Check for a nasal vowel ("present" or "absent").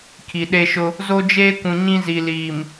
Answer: present